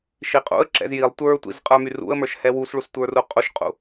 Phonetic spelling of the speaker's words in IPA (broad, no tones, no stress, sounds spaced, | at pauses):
ʃ i qʼ ṵ ə̯ ǁ ɛ̰ z j i lˠ tʷ ə˞ tʷ ḭ z qʼ ə˞ m y r ṵ ə̯ m ə˞ ʃ h ɛ w u s ɭ u s tʷ ə˞ r u qʼ u ʃ qʼ ṵ